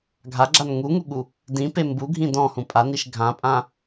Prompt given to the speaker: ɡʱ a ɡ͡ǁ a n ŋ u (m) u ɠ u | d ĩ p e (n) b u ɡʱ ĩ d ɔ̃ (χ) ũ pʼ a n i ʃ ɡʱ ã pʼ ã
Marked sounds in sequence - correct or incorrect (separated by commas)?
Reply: incorrect, incorrect, incorrect